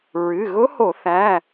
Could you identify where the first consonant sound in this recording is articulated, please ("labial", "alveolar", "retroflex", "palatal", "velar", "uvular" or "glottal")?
alveolar